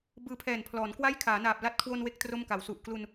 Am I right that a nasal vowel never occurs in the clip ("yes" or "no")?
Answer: yes